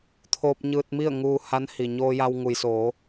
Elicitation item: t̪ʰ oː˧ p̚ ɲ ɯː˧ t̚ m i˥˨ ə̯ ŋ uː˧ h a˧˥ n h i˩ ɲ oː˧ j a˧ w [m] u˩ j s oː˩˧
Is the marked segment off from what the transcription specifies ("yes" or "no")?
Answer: yes